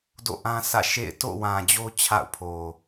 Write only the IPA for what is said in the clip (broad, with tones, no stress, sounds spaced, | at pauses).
d o̰˦˨ ʔ ã˦ s ä̰˦˨ ʃ ḛ˦˨ ɪ̯ t o̰˦˨ w ã˨ d͡ʑ o˦ t͡ɕʰ a̰˦˨ ʊ̯ pʰ o˨